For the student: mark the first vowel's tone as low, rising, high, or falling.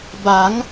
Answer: rising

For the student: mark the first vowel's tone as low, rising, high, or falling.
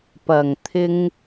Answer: low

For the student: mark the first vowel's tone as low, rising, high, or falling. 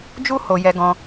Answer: high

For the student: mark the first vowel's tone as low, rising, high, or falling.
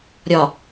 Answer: low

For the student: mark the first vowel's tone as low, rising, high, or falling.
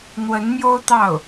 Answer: rising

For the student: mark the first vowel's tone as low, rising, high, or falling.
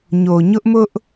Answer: low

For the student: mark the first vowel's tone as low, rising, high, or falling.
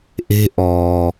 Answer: high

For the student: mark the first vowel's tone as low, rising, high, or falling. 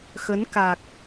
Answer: rising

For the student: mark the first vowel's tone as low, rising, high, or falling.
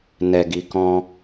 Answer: low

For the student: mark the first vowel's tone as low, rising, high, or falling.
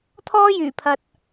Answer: high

